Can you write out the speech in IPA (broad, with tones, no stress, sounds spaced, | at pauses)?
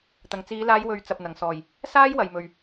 t̪ ɐ˨˩ ŋ t͡s iː˨˧ l aː˨˧ j w ɵ˨ ɥ t͡s ɐ˨ p̚ n̪ ɐ˨˩ ŋ s ɔː˨˩ j | s aː˥ j w ɐ˨ j m ɵ˨ ɥ